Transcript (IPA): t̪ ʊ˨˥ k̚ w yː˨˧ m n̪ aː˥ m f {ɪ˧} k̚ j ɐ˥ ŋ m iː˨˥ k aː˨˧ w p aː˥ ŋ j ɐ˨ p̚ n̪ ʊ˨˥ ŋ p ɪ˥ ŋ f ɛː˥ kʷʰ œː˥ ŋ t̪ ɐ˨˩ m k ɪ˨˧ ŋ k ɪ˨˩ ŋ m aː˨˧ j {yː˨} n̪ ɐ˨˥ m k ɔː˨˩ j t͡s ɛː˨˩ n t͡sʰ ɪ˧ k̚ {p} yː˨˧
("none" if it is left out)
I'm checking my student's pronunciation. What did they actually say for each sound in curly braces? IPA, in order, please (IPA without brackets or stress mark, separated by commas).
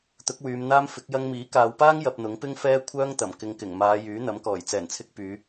ɪ˨˥, yː˨˥, p